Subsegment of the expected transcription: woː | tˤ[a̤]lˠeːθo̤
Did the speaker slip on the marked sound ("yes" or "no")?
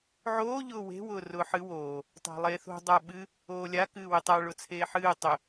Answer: no